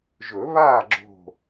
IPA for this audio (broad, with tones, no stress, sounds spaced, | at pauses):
ʒ ɵ˨˩˦ β aː˥˨ ɡ͡ǁ o̤˥˨